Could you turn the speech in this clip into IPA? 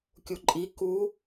kʲuǃʼi ku

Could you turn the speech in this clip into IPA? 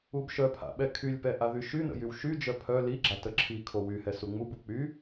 ubʃœpʰa̰ɓɛ kʰylʲpɛʔa ðyʃynə̰ jywʃyd͡ʒœ pʰœ liɡ͡ǁa təǁʰi kʰowyhɛ suŋ͡mubu k͡py

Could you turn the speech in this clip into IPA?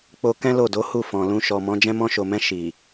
k͡po˧kɛ̃˦ lo˦˨do˨˦ hu˦˨fɔ̃˨lũ˧ ʃɔ˨mɔ̃˨˦ d͡ʒɛ̃˧mɔ̃˧ʃo˨mɛ̃˧ ʃi˨

